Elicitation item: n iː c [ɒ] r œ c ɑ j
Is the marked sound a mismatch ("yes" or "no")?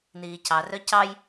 yes